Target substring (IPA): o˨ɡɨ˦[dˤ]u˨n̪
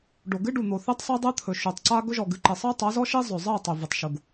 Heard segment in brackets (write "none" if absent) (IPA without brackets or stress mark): ɖ